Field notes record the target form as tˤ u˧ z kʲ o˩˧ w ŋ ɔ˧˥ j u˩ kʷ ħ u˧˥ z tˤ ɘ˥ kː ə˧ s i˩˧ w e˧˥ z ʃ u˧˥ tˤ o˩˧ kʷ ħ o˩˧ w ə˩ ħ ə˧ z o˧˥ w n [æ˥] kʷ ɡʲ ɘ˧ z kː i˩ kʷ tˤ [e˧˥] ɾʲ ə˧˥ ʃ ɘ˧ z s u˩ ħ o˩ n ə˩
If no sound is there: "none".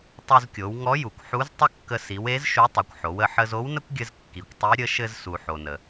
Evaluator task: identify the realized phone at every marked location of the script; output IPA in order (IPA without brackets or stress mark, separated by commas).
ə˥, i˧˥